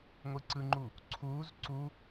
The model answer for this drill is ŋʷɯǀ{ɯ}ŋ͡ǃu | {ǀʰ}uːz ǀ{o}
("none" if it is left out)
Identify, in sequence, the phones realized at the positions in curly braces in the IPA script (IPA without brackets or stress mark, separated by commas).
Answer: ɯ, ǀʰ, u